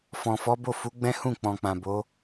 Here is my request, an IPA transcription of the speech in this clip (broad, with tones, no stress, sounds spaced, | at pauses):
f ɔ̃˨ f ɔ˨˦ b o˦˨ f u˨˦ ɡ͡b ɛ̃˦ h ũ˦˨ k͡p ɔ̃˨ k͡p ã˨ b o˨˦